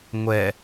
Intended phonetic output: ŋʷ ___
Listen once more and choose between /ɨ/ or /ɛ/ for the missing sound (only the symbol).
ɛ